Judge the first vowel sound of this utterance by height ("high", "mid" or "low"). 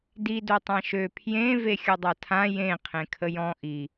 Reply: high